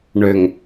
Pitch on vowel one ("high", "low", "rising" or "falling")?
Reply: low